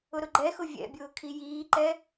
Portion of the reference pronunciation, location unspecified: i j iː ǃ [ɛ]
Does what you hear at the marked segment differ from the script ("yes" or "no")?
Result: no